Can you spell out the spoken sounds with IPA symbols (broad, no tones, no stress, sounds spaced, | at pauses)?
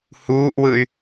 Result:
h uː ʔ w ɯ y̯